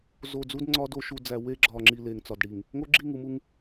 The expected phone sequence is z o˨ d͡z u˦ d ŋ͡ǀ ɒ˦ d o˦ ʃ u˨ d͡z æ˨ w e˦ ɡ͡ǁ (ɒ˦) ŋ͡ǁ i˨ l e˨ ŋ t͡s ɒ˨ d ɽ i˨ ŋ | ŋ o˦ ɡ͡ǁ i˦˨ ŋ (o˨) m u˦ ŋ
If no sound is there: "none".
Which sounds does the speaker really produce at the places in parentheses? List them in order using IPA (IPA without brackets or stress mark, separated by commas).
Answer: ɒ˨, u˨